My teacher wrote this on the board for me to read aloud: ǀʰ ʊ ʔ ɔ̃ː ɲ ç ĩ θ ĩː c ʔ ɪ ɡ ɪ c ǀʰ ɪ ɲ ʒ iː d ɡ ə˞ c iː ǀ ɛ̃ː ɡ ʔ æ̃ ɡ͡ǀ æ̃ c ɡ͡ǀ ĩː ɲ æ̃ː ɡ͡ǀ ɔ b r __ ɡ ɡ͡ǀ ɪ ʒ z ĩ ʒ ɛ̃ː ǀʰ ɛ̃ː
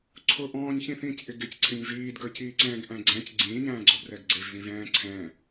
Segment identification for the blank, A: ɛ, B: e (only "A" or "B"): A